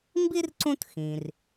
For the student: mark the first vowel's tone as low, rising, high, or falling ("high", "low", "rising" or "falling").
high